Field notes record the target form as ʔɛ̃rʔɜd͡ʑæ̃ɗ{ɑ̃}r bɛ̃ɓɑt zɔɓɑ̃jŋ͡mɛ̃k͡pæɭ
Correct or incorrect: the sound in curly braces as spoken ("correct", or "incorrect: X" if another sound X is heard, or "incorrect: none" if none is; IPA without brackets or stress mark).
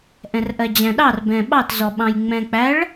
incorrect: ɑ